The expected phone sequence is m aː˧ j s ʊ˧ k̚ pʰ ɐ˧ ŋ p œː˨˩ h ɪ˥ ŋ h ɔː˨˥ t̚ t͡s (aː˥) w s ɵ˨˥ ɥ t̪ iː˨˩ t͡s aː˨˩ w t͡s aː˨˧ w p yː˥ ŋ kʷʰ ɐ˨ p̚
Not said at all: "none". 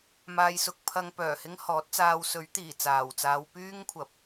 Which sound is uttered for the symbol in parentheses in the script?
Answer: aː˧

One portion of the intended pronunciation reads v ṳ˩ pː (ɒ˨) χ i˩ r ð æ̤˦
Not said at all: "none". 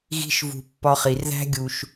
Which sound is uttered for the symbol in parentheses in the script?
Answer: ɒ˨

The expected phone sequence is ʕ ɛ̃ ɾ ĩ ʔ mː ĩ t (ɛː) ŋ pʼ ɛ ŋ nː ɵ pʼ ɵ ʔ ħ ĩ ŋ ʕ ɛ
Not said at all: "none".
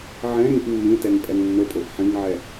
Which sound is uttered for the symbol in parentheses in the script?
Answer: ɛ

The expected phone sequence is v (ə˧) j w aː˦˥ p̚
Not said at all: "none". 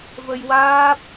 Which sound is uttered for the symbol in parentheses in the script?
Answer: ə˧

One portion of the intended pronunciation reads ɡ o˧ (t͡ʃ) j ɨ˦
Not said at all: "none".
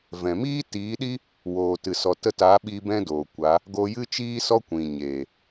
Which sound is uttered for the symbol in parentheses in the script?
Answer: none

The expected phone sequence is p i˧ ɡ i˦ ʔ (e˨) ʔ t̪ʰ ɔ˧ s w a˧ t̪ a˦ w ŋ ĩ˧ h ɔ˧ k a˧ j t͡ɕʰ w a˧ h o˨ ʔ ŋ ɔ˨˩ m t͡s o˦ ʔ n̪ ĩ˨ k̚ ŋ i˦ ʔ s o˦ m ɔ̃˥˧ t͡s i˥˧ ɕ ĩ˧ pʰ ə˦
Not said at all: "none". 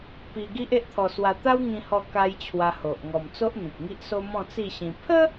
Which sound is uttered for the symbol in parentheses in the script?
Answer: e˦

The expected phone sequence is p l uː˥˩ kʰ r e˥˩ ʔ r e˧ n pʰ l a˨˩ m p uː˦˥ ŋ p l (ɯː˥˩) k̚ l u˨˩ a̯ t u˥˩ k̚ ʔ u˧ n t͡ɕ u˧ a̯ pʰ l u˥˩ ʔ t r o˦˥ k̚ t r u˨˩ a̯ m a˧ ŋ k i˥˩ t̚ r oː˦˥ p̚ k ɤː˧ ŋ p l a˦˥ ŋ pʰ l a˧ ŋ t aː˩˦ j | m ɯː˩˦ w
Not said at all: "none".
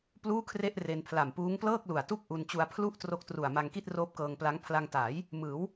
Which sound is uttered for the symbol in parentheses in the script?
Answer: ɤː˥˩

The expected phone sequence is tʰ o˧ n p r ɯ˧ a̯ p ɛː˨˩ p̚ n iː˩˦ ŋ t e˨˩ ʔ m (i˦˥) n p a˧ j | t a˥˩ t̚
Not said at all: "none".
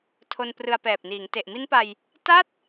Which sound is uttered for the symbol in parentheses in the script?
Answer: i˦˥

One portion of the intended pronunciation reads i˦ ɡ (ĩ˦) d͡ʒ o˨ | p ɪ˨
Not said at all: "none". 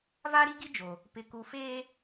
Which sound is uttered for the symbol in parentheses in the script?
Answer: i˦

